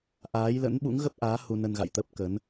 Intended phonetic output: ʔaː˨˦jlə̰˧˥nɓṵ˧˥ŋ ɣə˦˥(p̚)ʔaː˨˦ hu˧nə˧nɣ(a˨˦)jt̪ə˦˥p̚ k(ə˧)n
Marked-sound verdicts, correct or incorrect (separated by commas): correct, incorrect, incorrect